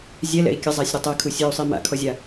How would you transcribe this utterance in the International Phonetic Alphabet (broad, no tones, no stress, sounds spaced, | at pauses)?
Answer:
zʲ ɛ l ɛ̰ i̯ kʲ ə zˤ a sʲ ɾʲ u tˤ ɜ kʰ u sʲ ɜ u̯ sˤ i m a̰ kʰ ɔ zʲ a